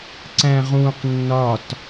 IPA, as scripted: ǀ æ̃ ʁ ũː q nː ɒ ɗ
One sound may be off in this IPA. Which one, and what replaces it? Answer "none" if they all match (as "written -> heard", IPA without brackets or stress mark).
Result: ɗ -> t